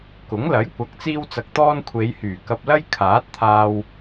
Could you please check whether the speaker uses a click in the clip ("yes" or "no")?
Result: no